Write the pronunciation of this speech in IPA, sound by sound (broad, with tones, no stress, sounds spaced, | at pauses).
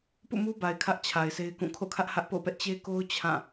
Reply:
p ṵ˦˨ m u˦ b a˨ ɪ̯ kʰ ä˦ ʔ t͡ɕʰ a˨ ɪ̯ s e˦ ɪ̯ k ũ˦˨ kʰ o̰˦˨ kʰ ä˦ ʔ h ä˦ ʔ p o̰˦˨ p ɛ˦ ʔ t͡ɕ e˦ k o˦ ʊ̯ t͡ɕʰ ã˦˨